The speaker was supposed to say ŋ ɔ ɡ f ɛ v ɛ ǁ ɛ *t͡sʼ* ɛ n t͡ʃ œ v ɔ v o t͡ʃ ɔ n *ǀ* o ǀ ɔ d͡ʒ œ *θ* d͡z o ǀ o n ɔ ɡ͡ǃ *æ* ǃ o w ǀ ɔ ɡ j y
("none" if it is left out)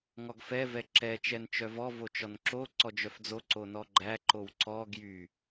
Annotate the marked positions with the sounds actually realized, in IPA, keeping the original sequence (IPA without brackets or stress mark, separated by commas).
t͡ʃ, ǁ, f, æ